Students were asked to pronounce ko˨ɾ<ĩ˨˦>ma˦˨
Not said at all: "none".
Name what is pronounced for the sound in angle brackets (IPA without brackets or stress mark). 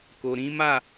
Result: ĩ˨˦